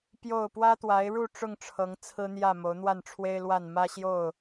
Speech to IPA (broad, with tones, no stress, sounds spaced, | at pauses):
p j o˥˨ ʊ̯ p w ä˦ t̪ w a˨˦ ɪ̯ ɻ u˥˨ ʈ͡ʂ ʊ˥˨ ŋ ʈ͡ʂʰ ɤ˨˦ ŋ t͡sʰ ɹ̩˦ n̪ j ä˥˨ m o˨˦ ʊ̯ n̪ w a˥˨ n ʈ͡ʂʰ w e˦ ɪ̯ l w a˥˨ n m ä˦ ɕ j o˥˨ ʊ̯